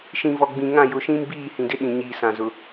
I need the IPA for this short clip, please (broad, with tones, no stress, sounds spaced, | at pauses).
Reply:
ʃ ĩ˨ v ɔ˨ ɡ͡b ĩ˨ ŋ ã˦˨ j ʊ˨ ʃ ĩ˦ m b iː˦˨ h ĩ˨ d ɪ˦ ɗ ĩ˨ ɲ iː˨ s ã˨ z ʊ˨